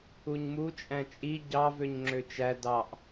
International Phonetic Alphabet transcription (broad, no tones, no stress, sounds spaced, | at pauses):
u ɲ m u t͡ʃʼ æ̃ t͡ʃʼ i ɟ ɑ v ø ɲ ŋ͡ǁ ø t͡ʃ æ d ɑ ʔ